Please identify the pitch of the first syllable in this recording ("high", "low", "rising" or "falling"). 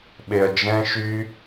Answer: low